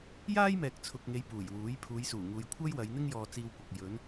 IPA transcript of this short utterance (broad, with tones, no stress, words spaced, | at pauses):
jaː˥jmɛː˨k̚t͡sʰʊ˨k̚ŋe˨˧j puː˨˩jwuː˨˥j pʰuː˨˧jsuː˨˩ŋuː˨j kʷʰɐ˥jwɐ˨˧jn̪ɪ˥ŋ jɔː˧t͡siː˧wkʷɐ˨k̚ jɵ˨˧n